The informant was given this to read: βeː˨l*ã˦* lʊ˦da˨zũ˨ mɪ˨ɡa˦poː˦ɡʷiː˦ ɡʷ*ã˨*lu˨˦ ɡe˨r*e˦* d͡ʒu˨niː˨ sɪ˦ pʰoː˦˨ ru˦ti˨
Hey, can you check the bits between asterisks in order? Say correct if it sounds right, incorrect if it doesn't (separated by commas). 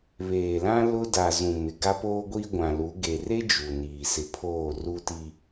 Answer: correct, correct, correct